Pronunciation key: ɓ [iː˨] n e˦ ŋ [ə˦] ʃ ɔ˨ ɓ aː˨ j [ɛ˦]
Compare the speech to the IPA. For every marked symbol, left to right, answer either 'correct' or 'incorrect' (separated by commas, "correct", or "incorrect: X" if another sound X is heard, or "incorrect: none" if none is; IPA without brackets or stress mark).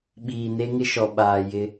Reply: correct, incorrect: ɪ˦, incorrect: ɪ˦